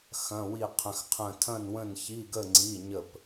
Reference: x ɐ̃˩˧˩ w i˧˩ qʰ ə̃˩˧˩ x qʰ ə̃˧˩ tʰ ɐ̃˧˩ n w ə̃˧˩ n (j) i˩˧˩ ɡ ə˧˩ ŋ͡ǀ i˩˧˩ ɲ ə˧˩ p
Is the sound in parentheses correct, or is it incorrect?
incorrect